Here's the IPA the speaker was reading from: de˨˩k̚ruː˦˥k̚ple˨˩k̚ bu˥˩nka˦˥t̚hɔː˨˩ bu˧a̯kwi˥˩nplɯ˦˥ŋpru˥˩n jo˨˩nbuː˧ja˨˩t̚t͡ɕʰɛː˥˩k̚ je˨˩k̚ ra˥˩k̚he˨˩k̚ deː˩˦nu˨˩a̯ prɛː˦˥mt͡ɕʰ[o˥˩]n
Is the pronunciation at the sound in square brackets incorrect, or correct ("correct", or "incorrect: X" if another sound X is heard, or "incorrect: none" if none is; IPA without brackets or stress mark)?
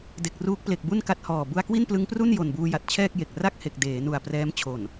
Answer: incorrect: o˨˩